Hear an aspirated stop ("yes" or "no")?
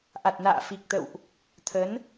yes